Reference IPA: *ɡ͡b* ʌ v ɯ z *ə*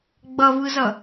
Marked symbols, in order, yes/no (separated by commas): yes, no